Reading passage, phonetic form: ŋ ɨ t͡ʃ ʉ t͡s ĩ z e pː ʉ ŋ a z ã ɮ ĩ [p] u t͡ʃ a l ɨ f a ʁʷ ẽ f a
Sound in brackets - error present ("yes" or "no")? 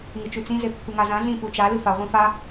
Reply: no